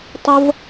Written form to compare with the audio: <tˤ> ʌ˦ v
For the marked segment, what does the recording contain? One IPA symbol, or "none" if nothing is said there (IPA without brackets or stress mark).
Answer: tˤ